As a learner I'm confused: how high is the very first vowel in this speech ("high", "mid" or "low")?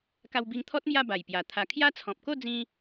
low